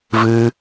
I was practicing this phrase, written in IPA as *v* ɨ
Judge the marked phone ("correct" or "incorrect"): correct